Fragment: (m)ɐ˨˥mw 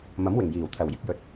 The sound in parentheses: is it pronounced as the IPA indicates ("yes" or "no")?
yes